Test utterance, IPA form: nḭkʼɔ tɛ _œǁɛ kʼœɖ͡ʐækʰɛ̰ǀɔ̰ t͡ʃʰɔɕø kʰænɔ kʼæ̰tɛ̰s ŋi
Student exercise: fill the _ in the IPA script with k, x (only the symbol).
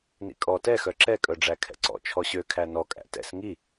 x